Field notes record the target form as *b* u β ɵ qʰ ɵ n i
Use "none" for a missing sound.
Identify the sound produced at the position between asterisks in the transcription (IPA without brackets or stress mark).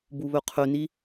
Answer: b